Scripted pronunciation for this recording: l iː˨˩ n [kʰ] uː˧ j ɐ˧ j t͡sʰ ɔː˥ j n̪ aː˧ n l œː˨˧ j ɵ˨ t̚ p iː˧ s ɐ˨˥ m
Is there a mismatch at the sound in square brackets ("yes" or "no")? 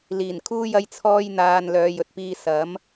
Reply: no